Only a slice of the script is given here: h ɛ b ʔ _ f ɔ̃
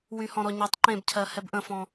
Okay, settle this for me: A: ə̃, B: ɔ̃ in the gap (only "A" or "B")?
A